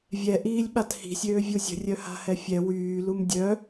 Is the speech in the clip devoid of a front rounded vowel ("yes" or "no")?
no